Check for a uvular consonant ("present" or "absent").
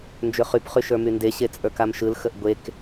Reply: present